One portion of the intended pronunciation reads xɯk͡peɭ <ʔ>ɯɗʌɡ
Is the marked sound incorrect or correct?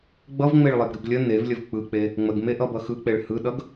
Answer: incorrect: h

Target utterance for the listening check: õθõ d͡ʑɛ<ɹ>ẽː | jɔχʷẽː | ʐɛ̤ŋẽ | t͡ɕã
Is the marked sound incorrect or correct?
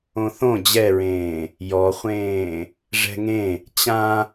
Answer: correct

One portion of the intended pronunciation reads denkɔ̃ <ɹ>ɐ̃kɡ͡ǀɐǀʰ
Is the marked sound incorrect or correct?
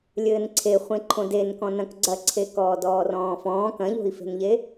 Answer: incorrect: n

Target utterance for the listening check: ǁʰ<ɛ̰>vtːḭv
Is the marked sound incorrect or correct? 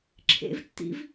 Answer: incorrect: ḛ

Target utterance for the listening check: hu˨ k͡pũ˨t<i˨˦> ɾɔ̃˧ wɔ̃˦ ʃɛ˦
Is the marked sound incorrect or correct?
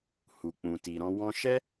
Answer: incorrect: i˨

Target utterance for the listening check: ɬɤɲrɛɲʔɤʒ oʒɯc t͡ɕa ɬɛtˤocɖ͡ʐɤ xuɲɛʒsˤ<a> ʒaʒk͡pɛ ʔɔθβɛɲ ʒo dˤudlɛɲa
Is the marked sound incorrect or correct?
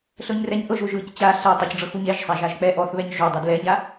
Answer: correct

